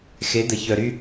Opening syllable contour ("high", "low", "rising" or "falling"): rising